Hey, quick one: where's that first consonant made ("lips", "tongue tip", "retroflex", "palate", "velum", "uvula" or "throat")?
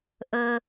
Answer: throat